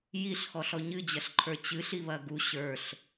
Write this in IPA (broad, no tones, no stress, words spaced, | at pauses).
jiɬxɔɬ ɔɲɨd͡ʑɐɬǃʰə˞ t͡ɕɨɬiβɐ ɡu ɕə˞ɬ